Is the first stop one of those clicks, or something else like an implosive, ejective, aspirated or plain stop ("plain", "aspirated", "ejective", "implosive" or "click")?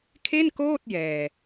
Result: aspirated